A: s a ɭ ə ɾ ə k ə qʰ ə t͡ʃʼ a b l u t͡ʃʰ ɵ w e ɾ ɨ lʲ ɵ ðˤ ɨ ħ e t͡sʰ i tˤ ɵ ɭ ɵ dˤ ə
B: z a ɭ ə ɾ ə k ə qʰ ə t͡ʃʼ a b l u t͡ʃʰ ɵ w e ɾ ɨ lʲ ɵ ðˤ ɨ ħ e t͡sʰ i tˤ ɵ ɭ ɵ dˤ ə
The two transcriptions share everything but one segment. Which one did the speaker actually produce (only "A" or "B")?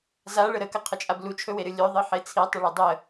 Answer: B